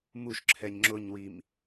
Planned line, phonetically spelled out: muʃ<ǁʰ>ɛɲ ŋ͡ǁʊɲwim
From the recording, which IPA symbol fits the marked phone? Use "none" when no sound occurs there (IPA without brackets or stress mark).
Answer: ǁʰ